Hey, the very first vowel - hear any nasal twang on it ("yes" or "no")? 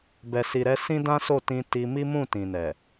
no